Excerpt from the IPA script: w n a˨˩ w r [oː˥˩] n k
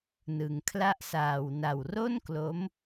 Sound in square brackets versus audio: incorrect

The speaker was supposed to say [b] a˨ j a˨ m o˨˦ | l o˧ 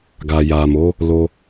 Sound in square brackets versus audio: incorrect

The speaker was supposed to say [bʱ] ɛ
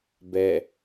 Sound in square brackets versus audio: incorrect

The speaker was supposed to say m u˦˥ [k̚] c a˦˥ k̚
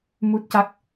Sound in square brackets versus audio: incorrect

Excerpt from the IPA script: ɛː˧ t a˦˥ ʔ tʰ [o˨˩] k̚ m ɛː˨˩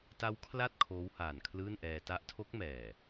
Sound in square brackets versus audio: incorrect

